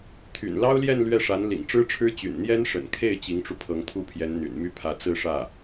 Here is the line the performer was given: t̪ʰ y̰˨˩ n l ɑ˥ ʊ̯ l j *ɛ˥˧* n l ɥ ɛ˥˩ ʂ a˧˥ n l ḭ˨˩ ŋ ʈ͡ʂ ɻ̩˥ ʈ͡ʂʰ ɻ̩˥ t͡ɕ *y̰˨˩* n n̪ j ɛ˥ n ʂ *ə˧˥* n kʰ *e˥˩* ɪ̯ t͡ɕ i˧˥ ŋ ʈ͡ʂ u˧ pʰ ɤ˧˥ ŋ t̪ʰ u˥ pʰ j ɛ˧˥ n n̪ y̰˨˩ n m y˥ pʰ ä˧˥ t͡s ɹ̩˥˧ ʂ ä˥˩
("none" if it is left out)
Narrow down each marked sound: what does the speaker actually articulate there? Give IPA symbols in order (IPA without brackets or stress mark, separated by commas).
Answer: ɛ˥˧, y̰˨˩, ə̰˨˩, e˥˩